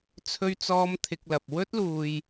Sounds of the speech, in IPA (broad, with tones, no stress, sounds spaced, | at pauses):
t͡sʰ ɵ˥ ɥ t͡s ɔː˥ m t̪ʰ ɪ˧ k̚ l ɐ˨ p̚ w ɵ˥ t̚ l uː˧ j